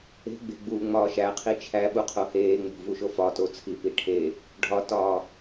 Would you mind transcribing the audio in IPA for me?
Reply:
e̤ ɡ͡b e̤ ɡ͡b uː ŋ͡m ɒː ʃ æ qʰ i t͡ʃʰ æ ɓ u qʰ o h eː ŋ͡m o̤ v u ʃ o f ɒ t o t͡sʰ i p i ʈʰ e | ɖʱ ɒ t ɒː

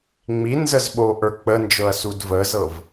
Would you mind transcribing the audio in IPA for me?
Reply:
ŋ͡m i n z ə z ɓ o ʔ ə˞ k͡p ə n d͡ʒ ɤ ɐ̯ s u d v ə z ɤ v

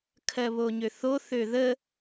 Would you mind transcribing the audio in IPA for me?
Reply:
kʰ ɜ β o ɲ ø θ o θ ø ð ə

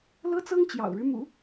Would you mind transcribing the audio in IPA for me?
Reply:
l ɤ˥ t͡s ɤ˥ ŋ t͡ɕ j ɑ̰˨˩ ʊ̯ ɻ ɻ̩˦ m ṵ˨˩˦

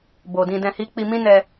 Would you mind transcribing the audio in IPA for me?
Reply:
b o˨ d ĩ˧ d ɛ̃˧ h i˦ k͡p i˧ m ĩ˦ n ɛ˧

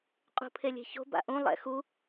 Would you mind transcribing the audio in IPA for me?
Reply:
qʼ ṳ pʰ e lʲ e̤ ç o̤ b a̰ ʔ ũ lˠ ɛ̰ x u

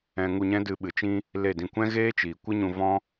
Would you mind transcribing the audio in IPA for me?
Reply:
ɛ̃˧ ŋ u˧ ɲ ɛ̃˦ d ɨ˧ ɓ ɨ˨ t͡ʃ ĩ˦ | l e˦˨ d ĩ˧ kʷ ɛ̃˦ ɣ eː˦ t͡ʃ iː˨ kʷ ɨ˦ ɲ ũ˧ v ɔ̃˦

